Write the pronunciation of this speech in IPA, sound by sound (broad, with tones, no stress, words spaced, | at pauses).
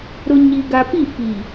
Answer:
ɾʊ˨ ɲi˨ ɡa˨pi˦˨fi˨